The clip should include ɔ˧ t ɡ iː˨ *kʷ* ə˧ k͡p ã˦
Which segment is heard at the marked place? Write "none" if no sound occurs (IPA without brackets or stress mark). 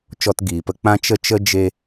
p